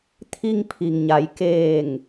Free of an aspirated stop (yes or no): no